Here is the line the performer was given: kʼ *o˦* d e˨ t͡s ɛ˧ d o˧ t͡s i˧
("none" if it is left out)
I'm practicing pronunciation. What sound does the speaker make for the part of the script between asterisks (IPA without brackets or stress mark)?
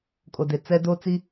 o˨